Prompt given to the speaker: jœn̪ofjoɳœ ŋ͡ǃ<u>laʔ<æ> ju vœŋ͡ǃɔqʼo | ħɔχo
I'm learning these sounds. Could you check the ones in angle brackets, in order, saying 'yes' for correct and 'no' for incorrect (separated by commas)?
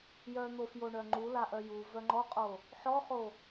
yes, no